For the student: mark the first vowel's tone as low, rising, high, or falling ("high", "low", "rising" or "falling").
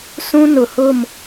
high